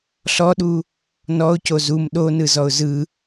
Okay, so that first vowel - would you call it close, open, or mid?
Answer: mid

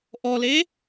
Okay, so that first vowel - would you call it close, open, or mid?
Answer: mid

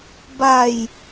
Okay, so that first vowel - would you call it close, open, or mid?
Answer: open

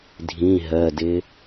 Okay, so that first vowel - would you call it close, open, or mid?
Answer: close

